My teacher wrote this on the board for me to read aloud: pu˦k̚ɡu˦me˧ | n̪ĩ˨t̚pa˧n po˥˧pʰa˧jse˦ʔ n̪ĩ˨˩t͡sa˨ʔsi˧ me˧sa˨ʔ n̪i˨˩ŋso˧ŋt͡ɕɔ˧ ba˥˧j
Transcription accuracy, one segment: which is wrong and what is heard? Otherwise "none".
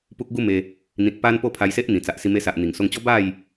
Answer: ɔ˧ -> ɔ˦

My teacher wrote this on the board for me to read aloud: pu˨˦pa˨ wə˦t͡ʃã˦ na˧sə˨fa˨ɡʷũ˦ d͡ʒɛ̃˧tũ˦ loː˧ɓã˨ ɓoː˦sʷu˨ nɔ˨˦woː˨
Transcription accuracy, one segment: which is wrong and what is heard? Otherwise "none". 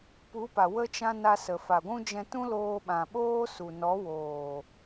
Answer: sʷ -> s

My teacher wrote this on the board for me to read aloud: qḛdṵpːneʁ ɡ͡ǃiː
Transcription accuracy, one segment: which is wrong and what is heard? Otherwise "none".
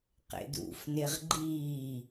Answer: pː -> f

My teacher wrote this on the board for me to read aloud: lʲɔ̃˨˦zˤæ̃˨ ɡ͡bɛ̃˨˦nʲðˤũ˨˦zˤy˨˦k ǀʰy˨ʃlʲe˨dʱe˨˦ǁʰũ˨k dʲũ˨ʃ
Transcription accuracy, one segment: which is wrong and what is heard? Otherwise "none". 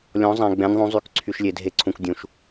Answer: ǁʰ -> ǀʰ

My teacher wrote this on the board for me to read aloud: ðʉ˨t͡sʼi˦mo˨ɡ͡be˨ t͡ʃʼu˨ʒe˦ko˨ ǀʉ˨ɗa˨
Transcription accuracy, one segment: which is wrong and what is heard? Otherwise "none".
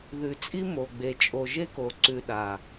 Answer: u˨ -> o˨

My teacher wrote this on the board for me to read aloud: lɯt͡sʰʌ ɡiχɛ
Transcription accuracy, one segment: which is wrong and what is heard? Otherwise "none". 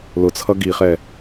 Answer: ɯ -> ʊ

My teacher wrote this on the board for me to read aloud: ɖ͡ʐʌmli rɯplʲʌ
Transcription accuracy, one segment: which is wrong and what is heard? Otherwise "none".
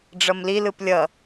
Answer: r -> l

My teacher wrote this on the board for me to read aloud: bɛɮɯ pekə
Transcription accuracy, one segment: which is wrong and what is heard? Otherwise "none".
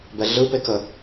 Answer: none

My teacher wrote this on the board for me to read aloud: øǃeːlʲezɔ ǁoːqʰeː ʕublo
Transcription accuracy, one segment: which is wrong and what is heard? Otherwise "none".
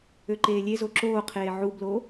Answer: ɔ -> o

